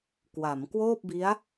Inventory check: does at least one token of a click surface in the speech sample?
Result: no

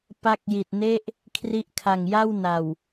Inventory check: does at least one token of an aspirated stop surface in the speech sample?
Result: yes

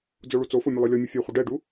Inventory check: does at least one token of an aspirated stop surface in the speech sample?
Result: no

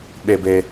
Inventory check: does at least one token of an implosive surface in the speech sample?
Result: yes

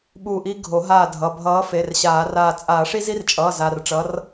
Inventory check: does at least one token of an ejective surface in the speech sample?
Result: yes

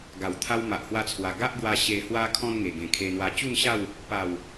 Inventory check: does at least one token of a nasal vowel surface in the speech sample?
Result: yes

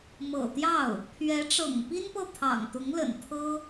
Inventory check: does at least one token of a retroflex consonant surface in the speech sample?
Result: yes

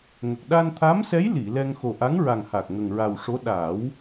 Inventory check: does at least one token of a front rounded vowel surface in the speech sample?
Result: no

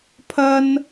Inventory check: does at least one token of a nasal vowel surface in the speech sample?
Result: no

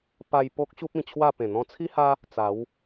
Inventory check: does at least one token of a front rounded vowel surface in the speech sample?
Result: no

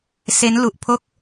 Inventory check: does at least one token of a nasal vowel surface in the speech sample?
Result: no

